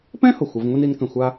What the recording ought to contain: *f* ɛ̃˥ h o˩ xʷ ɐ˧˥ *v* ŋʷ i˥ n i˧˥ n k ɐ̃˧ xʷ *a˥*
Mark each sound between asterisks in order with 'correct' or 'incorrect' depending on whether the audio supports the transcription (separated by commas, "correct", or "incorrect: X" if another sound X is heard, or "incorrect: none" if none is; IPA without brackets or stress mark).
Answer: incorrect: p, correct, correct